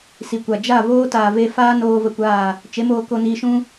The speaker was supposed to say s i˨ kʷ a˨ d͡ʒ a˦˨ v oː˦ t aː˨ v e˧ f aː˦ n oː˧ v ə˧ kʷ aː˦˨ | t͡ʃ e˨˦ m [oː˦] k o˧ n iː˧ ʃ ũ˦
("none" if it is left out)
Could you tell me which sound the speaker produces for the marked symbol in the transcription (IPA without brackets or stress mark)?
oː˧